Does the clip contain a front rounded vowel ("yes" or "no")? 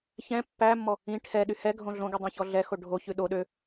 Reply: yes